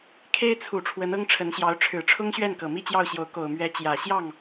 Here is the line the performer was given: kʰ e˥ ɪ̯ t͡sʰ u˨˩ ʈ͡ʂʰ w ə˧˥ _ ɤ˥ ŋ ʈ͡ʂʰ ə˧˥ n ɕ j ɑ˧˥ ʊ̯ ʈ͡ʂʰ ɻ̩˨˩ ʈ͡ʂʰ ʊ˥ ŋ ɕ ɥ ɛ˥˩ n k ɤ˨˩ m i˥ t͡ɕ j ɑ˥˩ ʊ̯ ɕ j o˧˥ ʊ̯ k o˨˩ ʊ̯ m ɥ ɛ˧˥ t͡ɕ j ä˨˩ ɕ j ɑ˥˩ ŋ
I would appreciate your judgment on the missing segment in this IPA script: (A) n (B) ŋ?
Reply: A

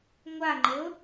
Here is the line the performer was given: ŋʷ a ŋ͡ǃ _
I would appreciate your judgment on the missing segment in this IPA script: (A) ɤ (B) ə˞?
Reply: A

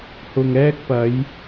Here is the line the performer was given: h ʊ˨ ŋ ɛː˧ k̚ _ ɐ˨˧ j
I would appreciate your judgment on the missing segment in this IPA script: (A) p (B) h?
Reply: A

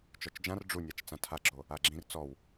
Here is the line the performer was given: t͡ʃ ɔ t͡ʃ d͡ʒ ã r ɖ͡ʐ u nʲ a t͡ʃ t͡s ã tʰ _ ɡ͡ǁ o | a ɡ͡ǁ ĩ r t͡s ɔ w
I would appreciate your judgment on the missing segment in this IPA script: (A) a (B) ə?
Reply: A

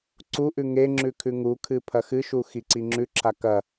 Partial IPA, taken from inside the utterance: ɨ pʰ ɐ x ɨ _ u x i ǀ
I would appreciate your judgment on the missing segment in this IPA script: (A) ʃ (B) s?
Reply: A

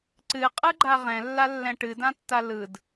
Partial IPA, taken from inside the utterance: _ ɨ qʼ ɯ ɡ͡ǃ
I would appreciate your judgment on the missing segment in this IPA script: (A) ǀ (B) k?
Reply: A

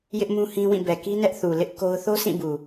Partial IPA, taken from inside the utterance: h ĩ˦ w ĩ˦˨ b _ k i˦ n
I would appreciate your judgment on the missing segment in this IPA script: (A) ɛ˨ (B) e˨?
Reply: A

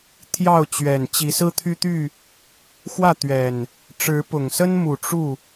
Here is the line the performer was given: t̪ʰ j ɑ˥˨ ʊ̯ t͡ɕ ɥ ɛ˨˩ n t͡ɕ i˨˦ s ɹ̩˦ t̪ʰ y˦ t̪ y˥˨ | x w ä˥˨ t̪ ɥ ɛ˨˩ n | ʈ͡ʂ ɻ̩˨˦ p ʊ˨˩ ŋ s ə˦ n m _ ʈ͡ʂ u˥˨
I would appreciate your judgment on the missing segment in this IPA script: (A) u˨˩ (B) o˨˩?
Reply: A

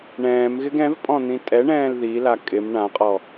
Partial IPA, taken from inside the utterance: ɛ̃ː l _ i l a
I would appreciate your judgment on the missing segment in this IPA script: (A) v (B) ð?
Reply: B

